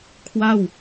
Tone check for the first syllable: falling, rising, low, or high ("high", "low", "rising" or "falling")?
falling